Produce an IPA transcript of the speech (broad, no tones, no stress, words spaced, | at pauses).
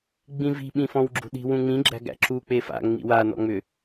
ɡ͡bĩvi̤ ɓĩfɔ̃wɡ͡ǁṳɗi̤ wũŋ͡mĩ ɡ͡ǁæ̤ɡæ̰ǁu k͡pefa̰ ŋ͡mḭwa nɔ̰ŋ͡mʏ